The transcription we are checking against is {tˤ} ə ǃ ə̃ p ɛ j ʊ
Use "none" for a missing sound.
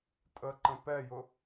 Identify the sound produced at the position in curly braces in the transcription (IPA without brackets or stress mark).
tʼ